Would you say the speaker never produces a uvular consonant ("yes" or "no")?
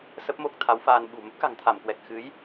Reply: yes